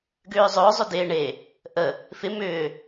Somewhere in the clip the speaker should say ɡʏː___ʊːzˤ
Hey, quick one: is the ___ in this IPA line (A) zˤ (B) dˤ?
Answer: A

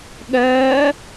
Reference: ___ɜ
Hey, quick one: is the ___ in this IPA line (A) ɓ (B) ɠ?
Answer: B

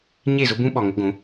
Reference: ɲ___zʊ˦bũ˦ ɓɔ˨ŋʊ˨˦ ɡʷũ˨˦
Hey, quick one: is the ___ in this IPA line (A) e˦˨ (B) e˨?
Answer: A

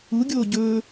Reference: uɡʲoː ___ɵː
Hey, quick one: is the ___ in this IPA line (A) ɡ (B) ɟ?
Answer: B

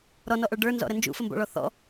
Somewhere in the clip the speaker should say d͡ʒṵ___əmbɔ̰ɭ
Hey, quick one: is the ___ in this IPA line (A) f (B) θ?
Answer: A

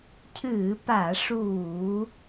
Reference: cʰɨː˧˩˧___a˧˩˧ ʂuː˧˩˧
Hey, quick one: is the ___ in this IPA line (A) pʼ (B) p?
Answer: B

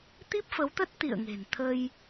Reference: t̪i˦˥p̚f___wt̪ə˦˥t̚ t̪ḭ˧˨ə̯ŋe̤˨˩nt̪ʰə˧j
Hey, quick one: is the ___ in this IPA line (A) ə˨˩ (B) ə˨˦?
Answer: B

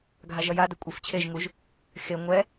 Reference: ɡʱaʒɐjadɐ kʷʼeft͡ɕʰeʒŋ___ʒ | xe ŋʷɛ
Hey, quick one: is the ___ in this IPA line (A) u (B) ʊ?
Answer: A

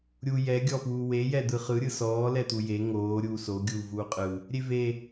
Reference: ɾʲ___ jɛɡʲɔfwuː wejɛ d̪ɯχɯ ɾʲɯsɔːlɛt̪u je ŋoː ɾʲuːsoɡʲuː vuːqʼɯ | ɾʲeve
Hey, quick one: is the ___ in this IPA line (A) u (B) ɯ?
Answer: A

